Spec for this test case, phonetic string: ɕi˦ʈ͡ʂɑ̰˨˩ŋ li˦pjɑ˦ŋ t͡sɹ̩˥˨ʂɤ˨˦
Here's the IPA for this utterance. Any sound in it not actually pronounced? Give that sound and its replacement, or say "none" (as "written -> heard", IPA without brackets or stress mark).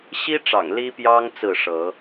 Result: none